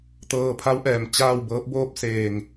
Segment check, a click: absent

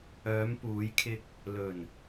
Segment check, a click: absent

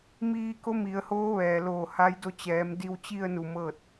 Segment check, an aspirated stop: absent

